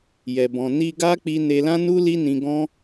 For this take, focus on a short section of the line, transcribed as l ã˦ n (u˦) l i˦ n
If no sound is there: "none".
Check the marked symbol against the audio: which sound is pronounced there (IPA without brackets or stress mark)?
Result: u˦